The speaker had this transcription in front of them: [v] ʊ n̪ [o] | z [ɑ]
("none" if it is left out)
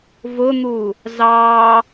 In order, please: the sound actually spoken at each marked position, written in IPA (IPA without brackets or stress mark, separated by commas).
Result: v, u, ɑ